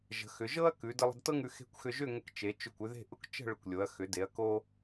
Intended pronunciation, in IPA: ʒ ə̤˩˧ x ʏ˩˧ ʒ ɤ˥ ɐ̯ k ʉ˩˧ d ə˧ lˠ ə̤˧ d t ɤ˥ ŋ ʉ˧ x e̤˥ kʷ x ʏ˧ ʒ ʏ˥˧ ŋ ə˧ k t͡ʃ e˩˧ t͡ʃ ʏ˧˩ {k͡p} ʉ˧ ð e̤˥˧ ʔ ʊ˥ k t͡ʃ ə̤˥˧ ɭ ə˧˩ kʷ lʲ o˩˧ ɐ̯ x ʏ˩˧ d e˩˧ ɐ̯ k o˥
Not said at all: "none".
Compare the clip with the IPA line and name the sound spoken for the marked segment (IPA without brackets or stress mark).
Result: kʷ